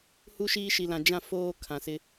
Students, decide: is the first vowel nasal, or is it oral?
oral